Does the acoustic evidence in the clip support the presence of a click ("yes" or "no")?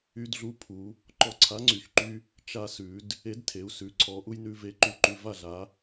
yes